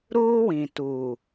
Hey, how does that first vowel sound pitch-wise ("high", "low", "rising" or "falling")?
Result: high